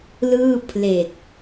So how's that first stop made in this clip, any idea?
aspirated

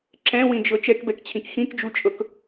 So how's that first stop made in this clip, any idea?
click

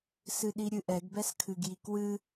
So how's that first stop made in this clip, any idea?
implosive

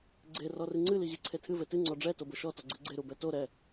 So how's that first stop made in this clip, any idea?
click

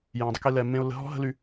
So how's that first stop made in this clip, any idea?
plain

